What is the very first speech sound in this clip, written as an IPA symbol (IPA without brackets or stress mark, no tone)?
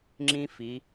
ŋ͡ǁ